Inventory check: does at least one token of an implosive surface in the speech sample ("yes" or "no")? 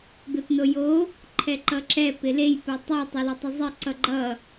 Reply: no